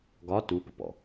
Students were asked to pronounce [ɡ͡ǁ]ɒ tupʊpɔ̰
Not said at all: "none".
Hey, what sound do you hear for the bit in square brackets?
ɡ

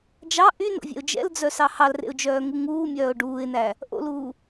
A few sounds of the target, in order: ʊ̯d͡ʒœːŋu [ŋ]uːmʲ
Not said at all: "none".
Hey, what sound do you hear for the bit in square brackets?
ŋ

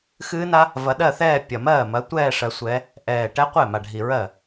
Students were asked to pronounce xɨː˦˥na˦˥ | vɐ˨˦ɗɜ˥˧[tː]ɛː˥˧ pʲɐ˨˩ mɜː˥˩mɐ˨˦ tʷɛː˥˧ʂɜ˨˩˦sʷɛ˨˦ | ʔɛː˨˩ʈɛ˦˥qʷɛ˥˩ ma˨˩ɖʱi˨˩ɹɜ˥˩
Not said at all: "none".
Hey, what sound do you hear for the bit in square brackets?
θ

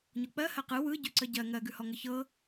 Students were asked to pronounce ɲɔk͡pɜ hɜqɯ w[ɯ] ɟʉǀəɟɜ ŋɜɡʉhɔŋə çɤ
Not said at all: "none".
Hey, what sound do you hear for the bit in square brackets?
ɯ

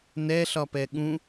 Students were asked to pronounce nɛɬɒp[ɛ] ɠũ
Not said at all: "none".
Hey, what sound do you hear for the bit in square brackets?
ɛ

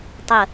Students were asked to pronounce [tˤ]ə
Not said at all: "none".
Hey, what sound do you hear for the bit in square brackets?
tˤ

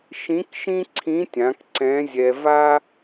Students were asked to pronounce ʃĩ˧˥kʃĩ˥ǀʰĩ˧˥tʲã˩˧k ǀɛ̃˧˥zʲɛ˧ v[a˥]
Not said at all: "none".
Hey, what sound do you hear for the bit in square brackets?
a˥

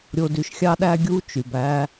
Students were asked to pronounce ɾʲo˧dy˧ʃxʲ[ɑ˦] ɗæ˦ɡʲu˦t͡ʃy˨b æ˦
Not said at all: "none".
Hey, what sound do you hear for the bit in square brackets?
ɑ˦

